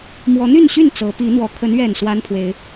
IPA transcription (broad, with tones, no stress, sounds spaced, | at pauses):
m w ɔ˨˦ n̪ y˥˨ n ɕ y˥˨ n t͡s ɤ˨˦ p i˨˦ n̪ w ɔ˨˩ kʰ ə˨˦ n ɥ ɛ˨˩ n s w a˦ n pʰ w e˨˦ ɪ̯